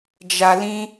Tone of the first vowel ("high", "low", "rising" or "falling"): low